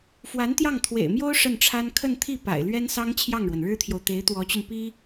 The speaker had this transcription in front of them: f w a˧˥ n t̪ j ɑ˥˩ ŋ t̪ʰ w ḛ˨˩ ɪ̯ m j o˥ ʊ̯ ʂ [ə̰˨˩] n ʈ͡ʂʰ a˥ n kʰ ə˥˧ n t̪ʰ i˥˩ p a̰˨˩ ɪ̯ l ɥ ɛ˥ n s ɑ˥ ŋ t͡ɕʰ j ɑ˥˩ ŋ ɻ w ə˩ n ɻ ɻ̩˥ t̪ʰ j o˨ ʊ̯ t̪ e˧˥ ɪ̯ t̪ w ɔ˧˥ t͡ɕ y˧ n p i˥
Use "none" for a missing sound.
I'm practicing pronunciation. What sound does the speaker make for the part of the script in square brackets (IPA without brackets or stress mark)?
ə˥˩